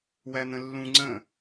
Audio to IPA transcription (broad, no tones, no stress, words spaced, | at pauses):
wæn̪ə̃lːũ ŋ͡ǀə̃